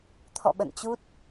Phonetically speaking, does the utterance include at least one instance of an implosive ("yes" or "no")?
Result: yes